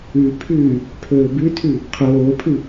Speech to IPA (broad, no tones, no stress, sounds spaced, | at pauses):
ʉ pʰ ʉː | pʰ ɵː b ʉ tʰ ʉ | qʰ oː pʰ ɨ